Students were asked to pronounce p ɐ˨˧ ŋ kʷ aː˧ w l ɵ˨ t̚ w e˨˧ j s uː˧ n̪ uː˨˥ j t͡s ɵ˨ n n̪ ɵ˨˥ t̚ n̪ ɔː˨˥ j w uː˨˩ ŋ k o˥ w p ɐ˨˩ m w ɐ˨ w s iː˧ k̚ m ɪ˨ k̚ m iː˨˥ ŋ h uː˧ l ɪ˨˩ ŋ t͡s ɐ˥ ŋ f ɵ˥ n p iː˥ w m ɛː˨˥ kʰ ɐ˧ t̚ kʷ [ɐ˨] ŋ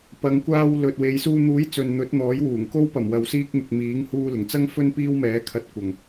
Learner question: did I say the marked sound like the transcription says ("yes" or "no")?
yes